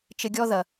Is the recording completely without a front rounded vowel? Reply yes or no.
yes